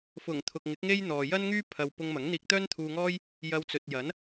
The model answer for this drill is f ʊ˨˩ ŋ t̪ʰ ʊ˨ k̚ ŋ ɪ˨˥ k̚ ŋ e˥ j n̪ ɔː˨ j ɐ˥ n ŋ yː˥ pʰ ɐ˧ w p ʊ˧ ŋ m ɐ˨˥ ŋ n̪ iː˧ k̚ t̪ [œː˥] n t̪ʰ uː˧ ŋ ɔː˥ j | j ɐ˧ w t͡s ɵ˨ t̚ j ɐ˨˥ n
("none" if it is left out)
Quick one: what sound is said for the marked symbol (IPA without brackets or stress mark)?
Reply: œː˥